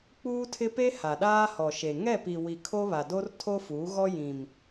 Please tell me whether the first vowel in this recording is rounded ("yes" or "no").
yes